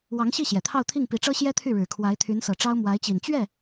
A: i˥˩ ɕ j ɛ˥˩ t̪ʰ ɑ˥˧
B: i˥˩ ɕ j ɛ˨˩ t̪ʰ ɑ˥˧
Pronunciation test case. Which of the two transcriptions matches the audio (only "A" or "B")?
B